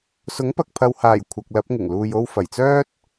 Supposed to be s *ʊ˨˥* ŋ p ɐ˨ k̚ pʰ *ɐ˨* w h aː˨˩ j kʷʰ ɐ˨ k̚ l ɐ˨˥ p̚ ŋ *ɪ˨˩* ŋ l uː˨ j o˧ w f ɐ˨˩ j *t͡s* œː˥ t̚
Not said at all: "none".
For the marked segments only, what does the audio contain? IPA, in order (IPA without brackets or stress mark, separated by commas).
ʊ˨˥, ɐ˨, ɪ˨˩, t͡s